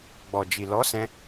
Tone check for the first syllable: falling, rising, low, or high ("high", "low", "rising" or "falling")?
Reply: low